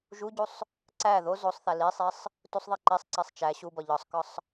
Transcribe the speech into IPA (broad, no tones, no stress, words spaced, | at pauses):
ʒuɟusˤ | ǀæ ðo zosˤθæ lisˤesˤ | tusˤðˤe ǃisˤǀesˤ t͡ʃæ ɕubɒ ʎɒsˤkɒsˤ